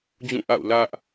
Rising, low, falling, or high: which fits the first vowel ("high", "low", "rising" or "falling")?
falling